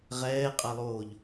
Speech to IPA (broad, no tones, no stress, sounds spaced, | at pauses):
ʁ ɛː qʼ a lˠ oː ʎ